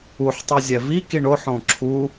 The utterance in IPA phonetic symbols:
uħtˤuzʲɛ vikiɳ oħõ ǁʰu

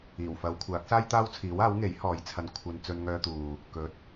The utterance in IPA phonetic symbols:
iː˨˩wfɐ˨˧wkʷʰaː˨˥k̚ saː˥jt̪aː˥wt͡sʰiː˨˥waː˨˥w ŋe˨˥jhɔː˨˧jt͡sʰɐ˧n kʷʰɐ˧n t͡sɵ˧nŋœː˧t̪uː˨ | kɵ˨˥t̚

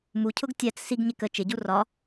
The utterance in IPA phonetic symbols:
mucʰʊɡ tʲæt͡s siɡɲɪ kə t͡ʃɪɟu rɒ

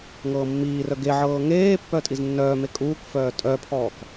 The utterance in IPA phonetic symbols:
ŋɤːmːiːrœ ɡeʕɤː ŋeːpːœ tʼiznːœːme kʼuːkfœː tʼœpʰɔːk

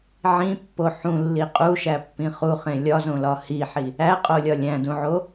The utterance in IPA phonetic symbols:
ʕĩpːo ħũlːi qʼuʃæpːĩ χuχẽ lʲɒzõlɒ hiħi | æqʼolʲɒ lʲæ̃dũʕo

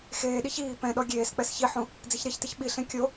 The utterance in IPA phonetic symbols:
xeːɗiç iː pɛ̃ɗɔ ɡʲeːsk͡pɛs çiħũ | d͡ziçɾeçtɪç ɓiɬẽ kʲo

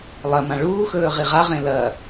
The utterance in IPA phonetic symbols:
lˠɐmã ɭuːxɵː ʁiʁaʁẽ lɐ

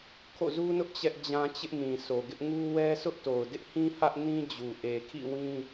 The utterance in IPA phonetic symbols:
kʰo̰˦˨zu˦nʊ˦ʔ t͡ɕɛ˦ʔd͡ʑã˦ t͡ɕɪ˦ʔ mĩ˨so˨ɡɪ˦ʔŋu˦ wɛ˦sʊ˦ʔ to˨ʊ̯dɪ˦ʔhĩ˦ hä˦ʔnĩ˦d͡ʑu˨ ʔe˨kʰḭ˦˨ wĩ˦

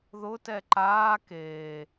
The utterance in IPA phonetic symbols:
ðʊ tɛǃaː keː

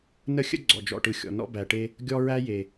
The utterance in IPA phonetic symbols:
nə˦xʲə̰˦ ɡ͡ǀɔ̰˨d͡ʒɔ̰˨ʈɯ˨ xʲɔ̰˨nɔ̰˦bæ˨ʈe˦ | ɡʲɔ˦ɹæ˦je˨

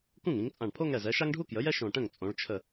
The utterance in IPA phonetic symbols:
kũ˥˩ŋĩ˩˧ŋt͡sʼã˧˩ɳ pʰo˦ŋɛ˧˩zɛ˩˧ ʃa˦ŋɖʱu˦kjə˩˧jɛ˦ ʃõ˧˩ʈə̃˥˩ŋ t͡sʼõ˩˧ɭ t͡ʃʰə˧˩

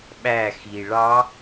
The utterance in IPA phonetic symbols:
ɓæxi ɭɑ

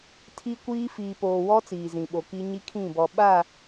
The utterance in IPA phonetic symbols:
tʰi˦kʷiː˦ fiː˨poː˨wɔ˦ t͡siː˨zĩ˨ɓo˨ki˦ ɲi˦kʰĩ˦˨bɔ˨ ɓa˦˨

